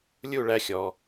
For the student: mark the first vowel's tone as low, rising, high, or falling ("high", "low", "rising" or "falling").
falling